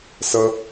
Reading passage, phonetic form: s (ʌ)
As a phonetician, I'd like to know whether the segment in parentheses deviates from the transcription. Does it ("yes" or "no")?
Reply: no